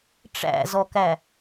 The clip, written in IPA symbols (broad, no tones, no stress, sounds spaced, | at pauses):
ʈ͡ʂ æ̰ z ɔ k æ